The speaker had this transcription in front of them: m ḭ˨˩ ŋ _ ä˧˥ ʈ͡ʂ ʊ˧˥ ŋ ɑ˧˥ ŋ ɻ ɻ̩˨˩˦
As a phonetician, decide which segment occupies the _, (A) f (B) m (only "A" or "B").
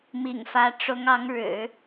A